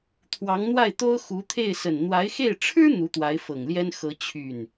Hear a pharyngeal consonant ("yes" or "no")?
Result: no